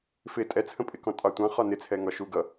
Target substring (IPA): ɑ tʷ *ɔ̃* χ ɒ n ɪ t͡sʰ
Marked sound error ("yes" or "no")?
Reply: yes